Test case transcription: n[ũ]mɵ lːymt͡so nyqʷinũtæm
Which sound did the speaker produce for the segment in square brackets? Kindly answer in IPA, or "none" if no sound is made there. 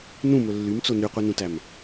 ũ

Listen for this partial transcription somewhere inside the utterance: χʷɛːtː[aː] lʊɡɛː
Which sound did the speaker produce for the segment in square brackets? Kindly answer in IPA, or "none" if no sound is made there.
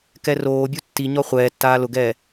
aː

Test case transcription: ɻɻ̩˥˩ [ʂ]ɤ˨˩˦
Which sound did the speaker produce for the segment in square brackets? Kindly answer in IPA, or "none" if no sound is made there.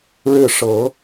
ʂ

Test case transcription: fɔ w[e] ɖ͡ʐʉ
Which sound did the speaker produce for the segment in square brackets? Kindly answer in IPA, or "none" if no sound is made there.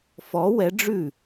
ɛ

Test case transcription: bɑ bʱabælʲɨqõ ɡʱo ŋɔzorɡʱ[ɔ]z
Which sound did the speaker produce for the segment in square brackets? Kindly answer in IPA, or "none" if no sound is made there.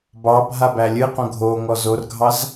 ɑ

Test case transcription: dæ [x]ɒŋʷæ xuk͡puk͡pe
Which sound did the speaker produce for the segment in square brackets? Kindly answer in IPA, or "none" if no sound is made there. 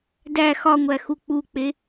x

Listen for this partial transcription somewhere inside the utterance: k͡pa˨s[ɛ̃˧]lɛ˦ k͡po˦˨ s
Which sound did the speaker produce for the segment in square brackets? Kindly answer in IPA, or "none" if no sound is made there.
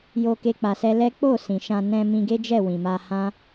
ɛ˧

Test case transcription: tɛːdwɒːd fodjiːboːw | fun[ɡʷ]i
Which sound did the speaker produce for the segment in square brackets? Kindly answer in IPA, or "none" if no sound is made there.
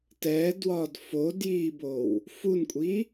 kʷʼ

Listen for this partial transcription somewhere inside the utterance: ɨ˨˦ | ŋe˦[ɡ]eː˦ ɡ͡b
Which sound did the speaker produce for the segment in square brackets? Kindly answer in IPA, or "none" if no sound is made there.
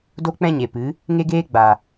ɡ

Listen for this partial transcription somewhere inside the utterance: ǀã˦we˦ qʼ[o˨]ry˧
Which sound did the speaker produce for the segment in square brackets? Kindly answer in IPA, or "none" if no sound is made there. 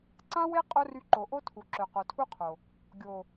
o˦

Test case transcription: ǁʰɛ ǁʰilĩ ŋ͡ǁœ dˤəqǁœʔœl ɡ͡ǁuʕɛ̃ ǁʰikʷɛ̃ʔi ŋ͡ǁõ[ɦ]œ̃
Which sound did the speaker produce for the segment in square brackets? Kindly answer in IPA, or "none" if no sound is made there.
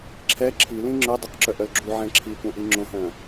ɦ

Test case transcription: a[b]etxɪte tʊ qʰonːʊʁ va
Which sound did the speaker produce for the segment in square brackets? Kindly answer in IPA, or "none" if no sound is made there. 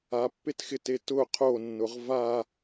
pː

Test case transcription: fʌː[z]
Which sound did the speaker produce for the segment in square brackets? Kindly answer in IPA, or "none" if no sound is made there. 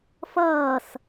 s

